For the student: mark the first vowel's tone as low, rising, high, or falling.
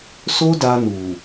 high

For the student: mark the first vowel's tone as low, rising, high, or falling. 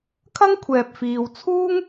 high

